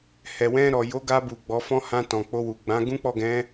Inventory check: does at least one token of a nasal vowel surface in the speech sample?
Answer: yes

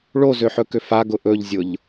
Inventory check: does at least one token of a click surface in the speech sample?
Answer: no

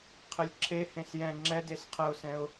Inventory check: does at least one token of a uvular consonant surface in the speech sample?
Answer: yes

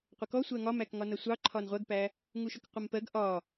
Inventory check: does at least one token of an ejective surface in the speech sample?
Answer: no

